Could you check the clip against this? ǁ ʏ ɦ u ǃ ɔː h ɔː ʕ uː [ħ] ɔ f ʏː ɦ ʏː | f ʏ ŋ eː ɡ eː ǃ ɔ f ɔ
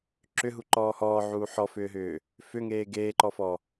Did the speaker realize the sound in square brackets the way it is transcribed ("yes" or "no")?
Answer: yes